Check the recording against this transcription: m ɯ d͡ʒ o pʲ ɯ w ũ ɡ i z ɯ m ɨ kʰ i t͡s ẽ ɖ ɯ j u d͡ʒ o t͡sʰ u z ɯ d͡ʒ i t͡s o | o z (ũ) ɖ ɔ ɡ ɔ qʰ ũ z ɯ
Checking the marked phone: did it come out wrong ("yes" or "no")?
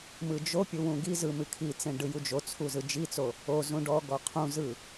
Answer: no